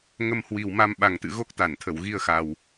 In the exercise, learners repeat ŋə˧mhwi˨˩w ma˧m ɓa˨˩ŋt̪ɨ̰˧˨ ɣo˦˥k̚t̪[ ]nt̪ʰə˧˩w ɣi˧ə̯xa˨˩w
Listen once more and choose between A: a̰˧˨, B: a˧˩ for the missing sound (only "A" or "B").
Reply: B